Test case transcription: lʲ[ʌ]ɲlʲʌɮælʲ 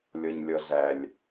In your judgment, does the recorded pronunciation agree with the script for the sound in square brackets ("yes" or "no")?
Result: yes